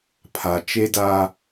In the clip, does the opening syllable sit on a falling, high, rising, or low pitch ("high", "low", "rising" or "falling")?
low